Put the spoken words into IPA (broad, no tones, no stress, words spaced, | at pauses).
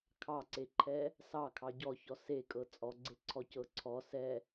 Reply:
kʰɑǀeǃʰɛ | sɑkʰɑ ɟɔçɔ sekʼɤ t͡sʼɔɡ͡ǀeǀʰɔcɤ ǀʰɔ sɛ